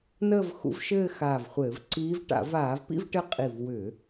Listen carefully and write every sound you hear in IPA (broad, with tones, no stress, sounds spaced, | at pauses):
n əː˥˧ v x ṵ˧˥ v ʃ ɘː˥˧ x aː˧˩ v χʷ ɘː˧˩˧ v ǀ iː˧˥ v ʈ a̰˧˩˧ v aː˧˩˧ v p ḭ˥˧ v ʈ ɘ˧˥ qʼ i˧˩ v w ʏ˧˩˧